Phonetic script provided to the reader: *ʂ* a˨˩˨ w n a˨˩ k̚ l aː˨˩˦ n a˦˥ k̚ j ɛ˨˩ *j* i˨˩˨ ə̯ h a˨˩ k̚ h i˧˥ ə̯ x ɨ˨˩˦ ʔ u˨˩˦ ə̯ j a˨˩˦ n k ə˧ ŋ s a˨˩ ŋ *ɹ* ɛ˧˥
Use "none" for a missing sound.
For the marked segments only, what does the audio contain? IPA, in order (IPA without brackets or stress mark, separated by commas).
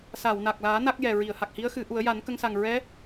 s, ɹ, ɹ